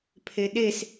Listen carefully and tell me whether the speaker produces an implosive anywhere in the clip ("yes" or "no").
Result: yes